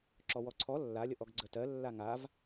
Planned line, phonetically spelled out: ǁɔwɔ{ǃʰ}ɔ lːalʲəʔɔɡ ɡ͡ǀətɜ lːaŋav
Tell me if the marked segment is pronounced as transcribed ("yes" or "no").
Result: no